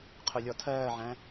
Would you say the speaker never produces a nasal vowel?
no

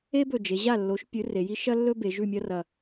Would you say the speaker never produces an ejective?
yes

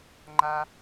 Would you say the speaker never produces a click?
no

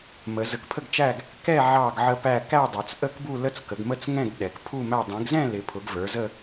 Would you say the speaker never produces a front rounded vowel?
yes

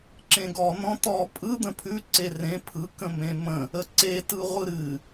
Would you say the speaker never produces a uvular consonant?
no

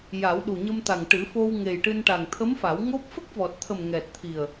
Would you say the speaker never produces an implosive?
no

